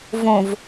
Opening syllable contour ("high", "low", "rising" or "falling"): low